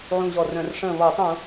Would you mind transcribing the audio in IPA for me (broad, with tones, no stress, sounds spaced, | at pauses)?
ʕ ũ˧˩ ʑ ɔ˧˩ r œ̃˧˩˧ r ʂ ə̃ː˧˩ β ɔ˧˩˧ tˤ ũ˧˩˧